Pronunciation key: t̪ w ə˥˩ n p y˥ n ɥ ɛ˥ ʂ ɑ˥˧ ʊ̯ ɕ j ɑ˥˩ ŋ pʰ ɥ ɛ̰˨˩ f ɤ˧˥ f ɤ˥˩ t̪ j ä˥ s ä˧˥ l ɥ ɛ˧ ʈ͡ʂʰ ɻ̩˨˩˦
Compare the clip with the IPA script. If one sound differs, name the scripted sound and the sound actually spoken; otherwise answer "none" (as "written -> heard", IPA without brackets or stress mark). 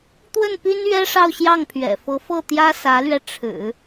none